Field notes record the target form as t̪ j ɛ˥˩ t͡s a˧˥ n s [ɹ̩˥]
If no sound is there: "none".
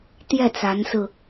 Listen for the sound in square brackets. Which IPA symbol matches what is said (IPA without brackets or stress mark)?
ɹ̩˧